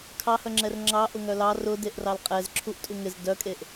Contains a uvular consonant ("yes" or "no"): yes